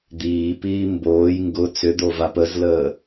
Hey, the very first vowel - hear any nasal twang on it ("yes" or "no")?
no